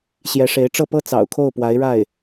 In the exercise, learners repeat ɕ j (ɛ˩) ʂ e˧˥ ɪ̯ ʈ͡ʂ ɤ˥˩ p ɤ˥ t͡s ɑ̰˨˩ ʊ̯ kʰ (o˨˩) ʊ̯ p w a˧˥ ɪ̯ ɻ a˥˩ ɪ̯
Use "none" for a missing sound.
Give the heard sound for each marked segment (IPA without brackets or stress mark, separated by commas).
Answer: ɛ˧˥, o˥˩